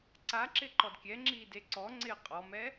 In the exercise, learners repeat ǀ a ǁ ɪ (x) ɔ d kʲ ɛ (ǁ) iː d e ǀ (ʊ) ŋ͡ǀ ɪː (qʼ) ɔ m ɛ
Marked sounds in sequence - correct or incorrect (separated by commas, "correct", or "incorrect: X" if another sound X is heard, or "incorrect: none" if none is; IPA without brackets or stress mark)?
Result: incorrect: ǃ, incorrect: ŋ͡ǁ, incorrect: ɔ, correct